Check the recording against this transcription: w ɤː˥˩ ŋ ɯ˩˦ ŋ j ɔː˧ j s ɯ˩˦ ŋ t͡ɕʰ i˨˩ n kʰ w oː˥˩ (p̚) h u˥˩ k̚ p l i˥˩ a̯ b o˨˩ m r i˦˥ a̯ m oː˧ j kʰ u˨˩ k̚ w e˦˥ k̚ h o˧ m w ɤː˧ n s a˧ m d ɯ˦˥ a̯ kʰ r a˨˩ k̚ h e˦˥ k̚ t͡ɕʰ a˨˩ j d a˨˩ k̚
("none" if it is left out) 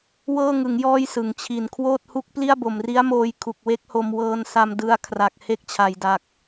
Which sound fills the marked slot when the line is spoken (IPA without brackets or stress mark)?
t̚